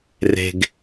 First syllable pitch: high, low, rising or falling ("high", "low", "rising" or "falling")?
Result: low